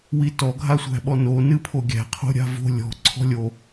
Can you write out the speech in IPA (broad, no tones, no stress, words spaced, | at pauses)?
witɔ ɡʱasʷæ̤ɓɔno nɨpʰoɡʲæ̤ qʰo̤ɾʲa̤vo̤ lʲɔ̤ ǀʰɔ̤lʲo